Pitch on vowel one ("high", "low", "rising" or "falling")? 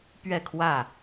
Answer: falling